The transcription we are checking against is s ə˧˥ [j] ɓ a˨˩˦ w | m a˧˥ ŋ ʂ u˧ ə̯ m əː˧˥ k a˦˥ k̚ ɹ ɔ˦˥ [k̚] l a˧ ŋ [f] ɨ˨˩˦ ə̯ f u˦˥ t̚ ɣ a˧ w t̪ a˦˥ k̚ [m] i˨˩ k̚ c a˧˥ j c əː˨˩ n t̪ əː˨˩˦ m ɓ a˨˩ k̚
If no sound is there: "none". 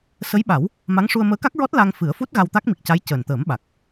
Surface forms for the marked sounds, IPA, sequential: j, t̚, f, m

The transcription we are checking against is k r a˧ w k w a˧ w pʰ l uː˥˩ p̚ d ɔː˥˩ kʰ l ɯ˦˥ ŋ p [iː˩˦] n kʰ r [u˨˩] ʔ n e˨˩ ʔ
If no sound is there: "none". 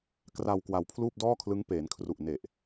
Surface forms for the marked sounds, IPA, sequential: eː˩˦, u˨˩

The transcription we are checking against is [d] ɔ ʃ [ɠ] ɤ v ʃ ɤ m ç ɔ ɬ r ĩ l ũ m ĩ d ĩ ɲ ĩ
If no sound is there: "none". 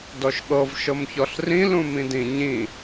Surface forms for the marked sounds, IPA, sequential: d, ɠ

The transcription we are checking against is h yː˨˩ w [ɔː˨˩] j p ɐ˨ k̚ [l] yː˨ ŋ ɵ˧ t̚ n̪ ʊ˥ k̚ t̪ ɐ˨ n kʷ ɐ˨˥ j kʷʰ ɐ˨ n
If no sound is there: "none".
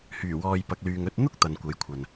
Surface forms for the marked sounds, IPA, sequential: ɔː˨, l

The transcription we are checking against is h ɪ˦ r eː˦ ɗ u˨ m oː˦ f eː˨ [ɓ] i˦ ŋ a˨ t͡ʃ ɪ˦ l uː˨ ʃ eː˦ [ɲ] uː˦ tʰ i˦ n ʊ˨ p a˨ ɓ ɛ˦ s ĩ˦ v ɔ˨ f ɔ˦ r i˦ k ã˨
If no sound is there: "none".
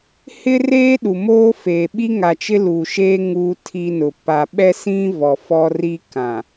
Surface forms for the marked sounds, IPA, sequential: ɓ, ŋ

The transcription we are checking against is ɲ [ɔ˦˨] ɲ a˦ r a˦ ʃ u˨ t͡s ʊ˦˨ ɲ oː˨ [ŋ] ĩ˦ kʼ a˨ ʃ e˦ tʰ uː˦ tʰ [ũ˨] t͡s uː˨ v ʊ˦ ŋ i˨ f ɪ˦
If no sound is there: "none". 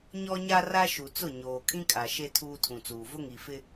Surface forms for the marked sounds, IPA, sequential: ɔ˦, kʼ, ũ˨

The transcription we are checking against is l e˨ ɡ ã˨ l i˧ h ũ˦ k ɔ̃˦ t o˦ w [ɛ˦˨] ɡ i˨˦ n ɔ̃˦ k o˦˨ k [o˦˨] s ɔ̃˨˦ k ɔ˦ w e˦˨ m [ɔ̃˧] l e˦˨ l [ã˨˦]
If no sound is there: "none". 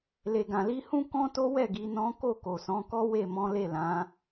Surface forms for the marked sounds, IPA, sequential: ɛ˦˨, o˨, ɔ̃˨˦, ã˨˦

